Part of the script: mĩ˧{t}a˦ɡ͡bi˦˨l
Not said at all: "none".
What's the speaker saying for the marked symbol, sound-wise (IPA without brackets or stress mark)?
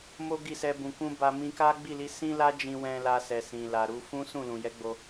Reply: k